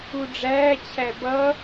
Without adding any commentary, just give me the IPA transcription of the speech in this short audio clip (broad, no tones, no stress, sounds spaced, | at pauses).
u ɖ͡ʐ æː t͡ɕʰ æ b ʌ